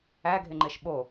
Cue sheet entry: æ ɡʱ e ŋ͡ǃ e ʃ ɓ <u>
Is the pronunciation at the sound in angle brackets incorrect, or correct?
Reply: incorrect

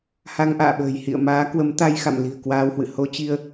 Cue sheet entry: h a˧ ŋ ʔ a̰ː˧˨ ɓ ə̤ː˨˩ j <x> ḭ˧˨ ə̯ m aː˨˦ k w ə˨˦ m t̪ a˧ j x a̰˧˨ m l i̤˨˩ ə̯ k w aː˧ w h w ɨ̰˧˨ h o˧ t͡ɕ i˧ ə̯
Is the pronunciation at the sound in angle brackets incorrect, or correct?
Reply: incorrect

